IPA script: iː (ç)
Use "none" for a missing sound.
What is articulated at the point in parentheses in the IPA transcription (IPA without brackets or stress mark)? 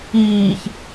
ç